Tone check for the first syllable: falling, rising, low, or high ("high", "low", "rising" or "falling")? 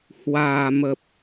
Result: low